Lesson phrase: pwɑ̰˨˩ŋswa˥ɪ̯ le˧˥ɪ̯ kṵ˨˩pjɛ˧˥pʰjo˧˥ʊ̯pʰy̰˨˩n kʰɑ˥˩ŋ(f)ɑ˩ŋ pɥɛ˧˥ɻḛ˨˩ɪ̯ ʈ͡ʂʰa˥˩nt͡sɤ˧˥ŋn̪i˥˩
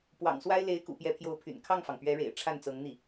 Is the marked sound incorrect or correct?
correct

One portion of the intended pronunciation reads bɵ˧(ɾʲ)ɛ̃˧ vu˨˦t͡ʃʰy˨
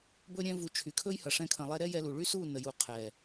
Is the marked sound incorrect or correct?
correct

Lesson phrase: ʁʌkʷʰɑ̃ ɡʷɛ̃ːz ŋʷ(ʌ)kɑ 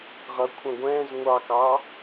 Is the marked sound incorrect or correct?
incorrect: ɑ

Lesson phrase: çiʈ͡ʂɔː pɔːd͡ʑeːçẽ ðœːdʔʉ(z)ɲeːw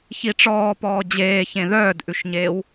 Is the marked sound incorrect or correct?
incorrect: ʃ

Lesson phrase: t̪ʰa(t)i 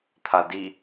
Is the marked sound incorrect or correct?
incorrect: d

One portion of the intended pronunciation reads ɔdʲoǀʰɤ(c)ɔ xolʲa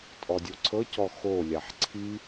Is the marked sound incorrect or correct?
correct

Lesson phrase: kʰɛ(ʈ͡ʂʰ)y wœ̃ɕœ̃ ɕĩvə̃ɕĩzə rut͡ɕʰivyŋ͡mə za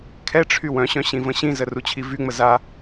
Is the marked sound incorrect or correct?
correct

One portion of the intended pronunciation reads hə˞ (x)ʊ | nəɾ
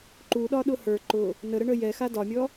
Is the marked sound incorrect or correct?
incorrect: ǃ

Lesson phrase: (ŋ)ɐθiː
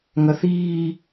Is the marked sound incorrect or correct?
correct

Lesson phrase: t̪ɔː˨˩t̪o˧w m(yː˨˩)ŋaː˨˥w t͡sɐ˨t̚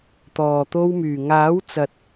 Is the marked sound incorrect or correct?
correct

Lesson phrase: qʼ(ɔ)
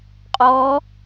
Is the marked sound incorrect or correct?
correct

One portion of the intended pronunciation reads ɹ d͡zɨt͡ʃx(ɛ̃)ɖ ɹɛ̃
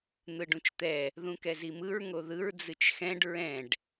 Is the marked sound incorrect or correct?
correct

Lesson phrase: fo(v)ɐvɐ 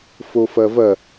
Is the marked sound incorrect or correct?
incorrect: f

